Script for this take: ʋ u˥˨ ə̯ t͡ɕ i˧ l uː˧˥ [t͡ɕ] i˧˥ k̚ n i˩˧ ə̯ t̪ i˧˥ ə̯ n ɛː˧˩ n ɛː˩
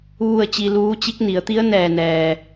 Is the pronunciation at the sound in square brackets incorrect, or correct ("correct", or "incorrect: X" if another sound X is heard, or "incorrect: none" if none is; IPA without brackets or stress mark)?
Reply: correct